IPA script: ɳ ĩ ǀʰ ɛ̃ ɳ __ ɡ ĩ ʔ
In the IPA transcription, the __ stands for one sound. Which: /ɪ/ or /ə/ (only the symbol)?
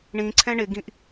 ɪ